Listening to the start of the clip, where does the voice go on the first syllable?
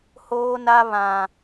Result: high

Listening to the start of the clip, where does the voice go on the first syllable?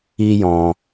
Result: high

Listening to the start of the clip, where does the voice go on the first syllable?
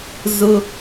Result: high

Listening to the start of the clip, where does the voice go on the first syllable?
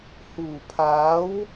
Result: low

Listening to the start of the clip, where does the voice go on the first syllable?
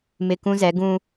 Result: low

